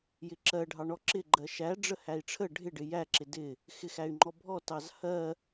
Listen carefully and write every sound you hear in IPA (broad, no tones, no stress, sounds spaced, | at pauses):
j ɪ ǁ ɜ ɖʱ ɑ ɳ ɔ ǁ ɪ ɡ͡ǃ ɜ ʃ æ ɖ͡ʐ ə h æ i̯ ʈ͡ʂʰ ə ɖʱ ɪ ɖ ɪ j æ ǁ ɪ d ɪ | x ɪ x æ y̯ ŋ͡ǃ ɔ bʱ ɔ t ɑ z h ɜ